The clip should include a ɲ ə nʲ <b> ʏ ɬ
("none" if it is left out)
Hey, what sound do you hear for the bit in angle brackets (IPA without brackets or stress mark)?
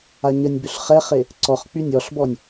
b